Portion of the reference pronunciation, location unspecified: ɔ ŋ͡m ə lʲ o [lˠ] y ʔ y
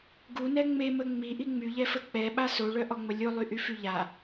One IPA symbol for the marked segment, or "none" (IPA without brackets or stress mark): lˠ